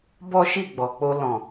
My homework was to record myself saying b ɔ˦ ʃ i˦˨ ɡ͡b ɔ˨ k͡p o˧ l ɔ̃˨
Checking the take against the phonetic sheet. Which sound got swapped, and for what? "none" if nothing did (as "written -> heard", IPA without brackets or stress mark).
none